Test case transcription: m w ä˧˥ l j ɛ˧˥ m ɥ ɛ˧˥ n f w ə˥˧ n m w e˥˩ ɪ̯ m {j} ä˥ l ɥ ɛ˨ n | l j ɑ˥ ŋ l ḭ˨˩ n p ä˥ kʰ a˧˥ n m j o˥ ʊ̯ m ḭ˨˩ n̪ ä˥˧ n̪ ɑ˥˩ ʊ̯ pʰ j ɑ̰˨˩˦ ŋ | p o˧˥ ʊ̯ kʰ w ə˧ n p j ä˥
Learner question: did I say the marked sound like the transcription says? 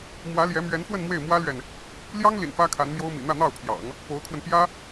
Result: no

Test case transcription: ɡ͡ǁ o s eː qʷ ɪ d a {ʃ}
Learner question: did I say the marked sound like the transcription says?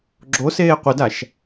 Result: yes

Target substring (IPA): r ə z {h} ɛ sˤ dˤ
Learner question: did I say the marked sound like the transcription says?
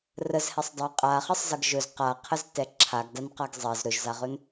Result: yes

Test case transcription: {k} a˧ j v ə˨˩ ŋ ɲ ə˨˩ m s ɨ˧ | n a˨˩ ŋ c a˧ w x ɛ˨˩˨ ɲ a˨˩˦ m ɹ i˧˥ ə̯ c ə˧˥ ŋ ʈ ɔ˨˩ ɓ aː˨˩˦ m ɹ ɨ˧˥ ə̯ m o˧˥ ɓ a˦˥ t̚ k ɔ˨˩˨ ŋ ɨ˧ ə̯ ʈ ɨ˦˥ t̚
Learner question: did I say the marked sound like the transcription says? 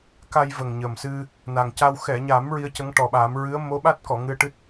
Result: yes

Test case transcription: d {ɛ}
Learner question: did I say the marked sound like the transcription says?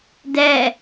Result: yes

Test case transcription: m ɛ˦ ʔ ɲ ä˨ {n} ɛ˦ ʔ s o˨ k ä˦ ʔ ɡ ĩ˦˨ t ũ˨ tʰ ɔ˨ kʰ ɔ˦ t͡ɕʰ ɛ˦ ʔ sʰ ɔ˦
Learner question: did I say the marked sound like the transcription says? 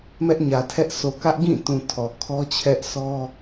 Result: no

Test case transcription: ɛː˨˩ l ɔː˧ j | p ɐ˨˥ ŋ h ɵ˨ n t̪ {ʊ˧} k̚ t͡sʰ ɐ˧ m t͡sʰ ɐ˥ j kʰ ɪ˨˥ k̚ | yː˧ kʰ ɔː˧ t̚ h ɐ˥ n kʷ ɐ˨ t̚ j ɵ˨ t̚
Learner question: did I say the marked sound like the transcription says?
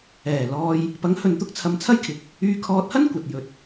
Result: no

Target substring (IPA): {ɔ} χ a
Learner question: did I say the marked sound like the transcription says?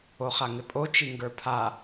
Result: no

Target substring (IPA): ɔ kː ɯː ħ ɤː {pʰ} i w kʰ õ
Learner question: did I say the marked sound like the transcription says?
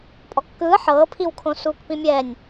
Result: yes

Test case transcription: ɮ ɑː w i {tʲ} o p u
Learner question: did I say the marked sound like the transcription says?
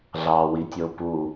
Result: yes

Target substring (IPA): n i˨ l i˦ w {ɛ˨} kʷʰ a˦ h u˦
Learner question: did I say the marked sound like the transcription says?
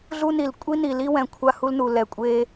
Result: no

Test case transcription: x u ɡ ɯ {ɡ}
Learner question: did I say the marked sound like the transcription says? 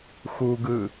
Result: no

